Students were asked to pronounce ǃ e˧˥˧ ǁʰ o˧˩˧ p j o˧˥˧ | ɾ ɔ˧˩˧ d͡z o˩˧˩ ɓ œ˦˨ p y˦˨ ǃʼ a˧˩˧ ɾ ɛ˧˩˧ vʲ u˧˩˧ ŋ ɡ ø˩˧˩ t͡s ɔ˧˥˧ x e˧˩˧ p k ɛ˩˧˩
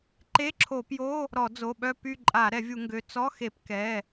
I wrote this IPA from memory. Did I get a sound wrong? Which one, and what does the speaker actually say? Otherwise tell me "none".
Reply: none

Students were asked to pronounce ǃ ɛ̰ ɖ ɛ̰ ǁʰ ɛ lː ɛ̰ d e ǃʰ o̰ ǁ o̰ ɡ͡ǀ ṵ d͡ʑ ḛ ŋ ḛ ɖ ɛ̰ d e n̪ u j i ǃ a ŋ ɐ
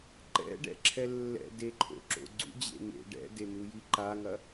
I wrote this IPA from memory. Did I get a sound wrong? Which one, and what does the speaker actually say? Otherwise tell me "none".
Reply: none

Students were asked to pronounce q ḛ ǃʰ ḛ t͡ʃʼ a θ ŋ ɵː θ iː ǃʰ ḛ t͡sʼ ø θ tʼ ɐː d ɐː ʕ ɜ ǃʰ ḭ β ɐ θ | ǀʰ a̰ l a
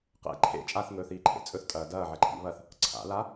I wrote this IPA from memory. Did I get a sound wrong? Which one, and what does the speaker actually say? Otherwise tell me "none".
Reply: ø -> ɵ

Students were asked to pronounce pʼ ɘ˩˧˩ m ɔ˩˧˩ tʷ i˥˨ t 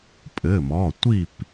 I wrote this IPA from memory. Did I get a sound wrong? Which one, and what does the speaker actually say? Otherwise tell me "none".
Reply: t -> p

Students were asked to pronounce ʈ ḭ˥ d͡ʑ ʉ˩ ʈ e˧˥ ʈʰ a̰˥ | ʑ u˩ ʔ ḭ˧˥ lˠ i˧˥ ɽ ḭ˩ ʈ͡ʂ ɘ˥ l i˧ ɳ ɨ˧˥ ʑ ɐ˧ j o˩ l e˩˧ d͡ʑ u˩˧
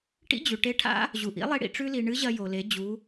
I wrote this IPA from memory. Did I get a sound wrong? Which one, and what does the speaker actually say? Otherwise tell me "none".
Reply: ɘ˥ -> ʉ˥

